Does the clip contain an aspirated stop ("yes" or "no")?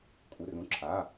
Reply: yes